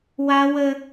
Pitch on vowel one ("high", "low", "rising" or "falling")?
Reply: high